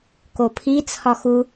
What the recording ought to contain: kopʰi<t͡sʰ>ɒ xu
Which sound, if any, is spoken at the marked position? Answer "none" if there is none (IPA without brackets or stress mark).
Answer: t͡sʰ